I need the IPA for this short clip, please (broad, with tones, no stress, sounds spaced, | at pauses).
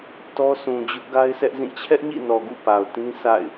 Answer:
t ɔ˦ s ũ˨ d͡ʑ ʊ˦ ʔ ɡ a˦ ɪ̯ sʰ ɛ˦ ʔ z ĩ˦˨ t͡ɕʰ ɛ˦ ʔ ɲ ḭ˦˨ n ɔ˨ ɡ ṵ˦˨ p a˨ ʊ̯ t ĩ˦ sʰ a̰˦˨ ɪ̯